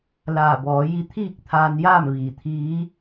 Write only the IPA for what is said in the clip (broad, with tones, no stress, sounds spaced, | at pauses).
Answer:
l aː˧˩ b ɔː˩˧ j i˧ t̪ʰ iː˥˨ k̚ t̪ʰ aː˧ n j aː˥˨ m ʋ iː˧˩ t̪ʰ iː˧˥